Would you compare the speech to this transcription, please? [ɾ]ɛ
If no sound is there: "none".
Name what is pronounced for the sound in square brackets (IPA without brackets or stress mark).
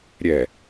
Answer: ɾʲ